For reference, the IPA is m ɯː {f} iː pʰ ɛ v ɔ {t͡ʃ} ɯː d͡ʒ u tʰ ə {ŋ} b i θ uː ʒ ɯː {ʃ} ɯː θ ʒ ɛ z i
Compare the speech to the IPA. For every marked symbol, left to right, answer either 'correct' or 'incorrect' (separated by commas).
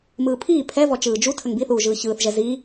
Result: incorrect, correct, correct, incorrect